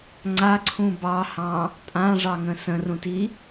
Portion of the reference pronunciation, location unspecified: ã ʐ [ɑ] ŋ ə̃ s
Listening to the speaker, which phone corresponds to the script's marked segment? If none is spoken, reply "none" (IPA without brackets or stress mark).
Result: ɑ